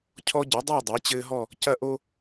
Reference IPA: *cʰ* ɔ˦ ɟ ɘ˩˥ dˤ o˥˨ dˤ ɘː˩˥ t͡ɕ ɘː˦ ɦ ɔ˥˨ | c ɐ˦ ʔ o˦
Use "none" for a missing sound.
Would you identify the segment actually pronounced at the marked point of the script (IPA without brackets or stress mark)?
cʰ